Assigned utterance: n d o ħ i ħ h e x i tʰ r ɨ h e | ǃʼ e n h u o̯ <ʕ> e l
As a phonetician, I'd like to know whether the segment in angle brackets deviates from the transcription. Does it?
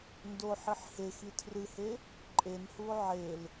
no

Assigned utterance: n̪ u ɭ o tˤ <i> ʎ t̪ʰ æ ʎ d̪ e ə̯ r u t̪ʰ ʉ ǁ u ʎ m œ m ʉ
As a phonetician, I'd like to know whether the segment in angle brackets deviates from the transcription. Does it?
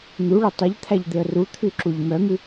no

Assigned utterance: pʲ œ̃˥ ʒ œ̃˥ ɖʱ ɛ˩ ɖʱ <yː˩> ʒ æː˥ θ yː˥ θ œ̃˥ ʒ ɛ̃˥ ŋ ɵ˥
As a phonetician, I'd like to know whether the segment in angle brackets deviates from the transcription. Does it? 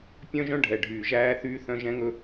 no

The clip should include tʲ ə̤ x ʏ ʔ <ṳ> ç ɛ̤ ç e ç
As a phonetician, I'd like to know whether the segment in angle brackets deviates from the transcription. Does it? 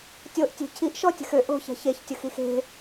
yes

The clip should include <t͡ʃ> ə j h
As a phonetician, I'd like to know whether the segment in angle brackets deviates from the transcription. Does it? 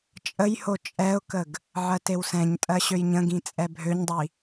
yes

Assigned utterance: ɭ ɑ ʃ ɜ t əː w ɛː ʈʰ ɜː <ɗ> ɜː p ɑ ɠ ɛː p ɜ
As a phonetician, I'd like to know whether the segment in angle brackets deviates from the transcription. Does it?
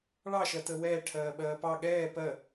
yes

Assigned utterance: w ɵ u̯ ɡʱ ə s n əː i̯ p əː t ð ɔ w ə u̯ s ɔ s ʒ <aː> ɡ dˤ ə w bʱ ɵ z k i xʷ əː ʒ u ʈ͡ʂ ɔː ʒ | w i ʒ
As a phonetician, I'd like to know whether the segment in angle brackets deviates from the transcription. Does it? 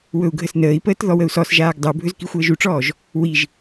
no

